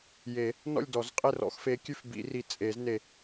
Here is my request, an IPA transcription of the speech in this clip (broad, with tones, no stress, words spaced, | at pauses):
je˨˩˦ | nɔ̰˥˨lʲdɔ˨˩˦zqʼe˥˨rɔ̰˨˦x fe˨˦kʲʉ˥˨fbḭ˨˩˦ri˨˩ t͡sʼe˨˩˦zne˨˩